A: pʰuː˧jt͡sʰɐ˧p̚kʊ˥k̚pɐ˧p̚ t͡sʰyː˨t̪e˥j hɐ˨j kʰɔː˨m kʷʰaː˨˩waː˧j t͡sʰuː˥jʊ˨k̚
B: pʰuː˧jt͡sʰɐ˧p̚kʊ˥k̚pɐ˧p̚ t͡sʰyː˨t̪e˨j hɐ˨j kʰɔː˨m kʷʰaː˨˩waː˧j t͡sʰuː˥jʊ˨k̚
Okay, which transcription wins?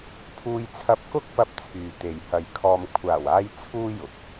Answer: B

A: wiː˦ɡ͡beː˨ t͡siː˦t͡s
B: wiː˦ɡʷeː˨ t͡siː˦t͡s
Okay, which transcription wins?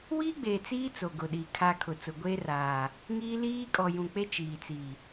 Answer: A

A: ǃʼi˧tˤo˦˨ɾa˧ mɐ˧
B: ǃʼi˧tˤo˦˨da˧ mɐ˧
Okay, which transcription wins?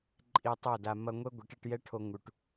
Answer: B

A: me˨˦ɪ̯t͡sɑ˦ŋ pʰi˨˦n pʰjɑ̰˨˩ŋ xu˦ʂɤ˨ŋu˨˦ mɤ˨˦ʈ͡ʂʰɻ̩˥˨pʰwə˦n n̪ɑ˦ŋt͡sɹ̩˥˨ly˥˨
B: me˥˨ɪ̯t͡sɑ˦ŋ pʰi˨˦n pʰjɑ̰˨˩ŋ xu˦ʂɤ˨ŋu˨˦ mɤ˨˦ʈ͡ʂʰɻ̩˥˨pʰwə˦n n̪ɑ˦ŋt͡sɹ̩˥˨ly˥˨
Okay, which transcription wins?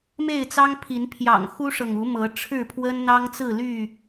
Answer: B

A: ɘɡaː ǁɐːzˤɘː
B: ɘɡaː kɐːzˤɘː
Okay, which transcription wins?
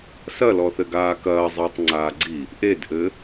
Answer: B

